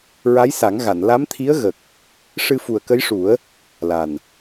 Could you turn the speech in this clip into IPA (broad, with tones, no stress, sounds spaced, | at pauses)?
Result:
ɹ a˧˥ j s a˨˩˦ ŋ ɣ a˨˩˨ n l a˧˥ m t̪ʰ i˧˥ ə̯ ɣ ə˨˩ k̚ | ʂ ɨ˧ f u˨˩ ə̯ k ə˧˥ j ʂ u˨˩˦ ə̯ | l a˨˩ n